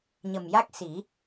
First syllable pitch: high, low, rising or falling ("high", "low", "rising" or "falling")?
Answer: low